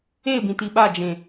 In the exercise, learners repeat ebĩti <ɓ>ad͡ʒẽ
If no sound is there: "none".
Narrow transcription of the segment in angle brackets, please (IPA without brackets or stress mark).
ɓ